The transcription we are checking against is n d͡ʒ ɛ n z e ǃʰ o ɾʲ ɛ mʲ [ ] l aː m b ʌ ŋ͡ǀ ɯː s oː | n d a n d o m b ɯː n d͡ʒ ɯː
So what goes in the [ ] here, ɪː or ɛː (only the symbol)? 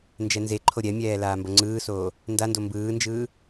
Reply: ɛː